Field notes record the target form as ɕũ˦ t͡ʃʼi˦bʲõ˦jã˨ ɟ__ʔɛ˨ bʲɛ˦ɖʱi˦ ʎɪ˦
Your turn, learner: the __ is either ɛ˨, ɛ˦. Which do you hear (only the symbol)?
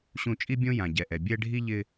ɛ˨